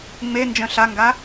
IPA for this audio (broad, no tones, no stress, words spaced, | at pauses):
ŋ͡me nd͡ʒœ̃ɬaŋɡa